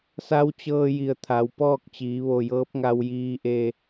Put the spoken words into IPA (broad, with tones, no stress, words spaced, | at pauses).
sa˧˥wt͡ɕɤː˧ji˩ə̯ t̪ʰa˩˧wpɔː˥˨k̚ t͡ɕiː˩˧ʋo˧˩jɤː˧˥p̚ ŋa˧wjiː˧ʔe˧